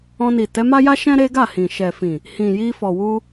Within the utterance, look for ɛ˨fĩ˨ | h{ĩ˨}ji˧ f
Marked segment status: correct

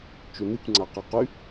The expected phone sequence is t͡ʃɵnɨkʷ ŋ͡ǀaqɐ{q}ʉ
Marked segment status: correct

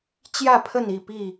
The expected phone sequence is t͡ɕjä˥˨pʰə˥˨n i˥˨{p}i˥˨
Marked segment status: correct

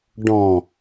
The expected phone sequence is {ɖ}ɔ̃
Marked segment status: correct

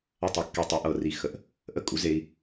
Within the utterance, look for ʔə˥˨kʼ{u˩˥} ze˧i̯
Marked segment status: correct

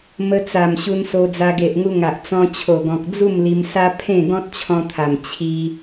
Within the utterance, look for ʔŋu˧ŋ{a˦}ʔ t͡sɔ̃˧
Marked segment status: incorrect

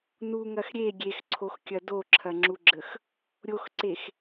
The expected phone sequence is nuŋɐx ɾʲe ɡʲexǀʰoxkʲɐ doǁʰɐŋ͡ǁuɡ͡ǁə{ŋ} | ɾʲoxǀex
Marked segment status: incorrect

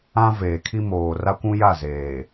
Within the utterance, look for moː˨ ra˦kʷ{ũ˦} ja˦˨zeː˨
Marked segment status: correct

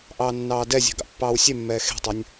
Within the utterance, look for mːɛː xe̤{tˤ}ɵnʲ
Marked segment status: correct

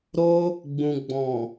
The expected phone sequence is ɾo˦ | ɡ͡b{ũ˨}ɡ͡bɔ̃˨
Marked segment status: correct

